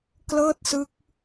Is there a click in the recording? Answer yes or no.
no